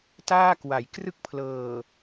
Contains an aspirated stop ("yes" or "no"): yes